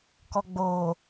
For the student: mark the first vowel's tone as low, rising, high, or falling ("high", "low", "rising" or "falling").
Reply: low